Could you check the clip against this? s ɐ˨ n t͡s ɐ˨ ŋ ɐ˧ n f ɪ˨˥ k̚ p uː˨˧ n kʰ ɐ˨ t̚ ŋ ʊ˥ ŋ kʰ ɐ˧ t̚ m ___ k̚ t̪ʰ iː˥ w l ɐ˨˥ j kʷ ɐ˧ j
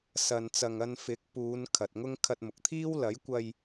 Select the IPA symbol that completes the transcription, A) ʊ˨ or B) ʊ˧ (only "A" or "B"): A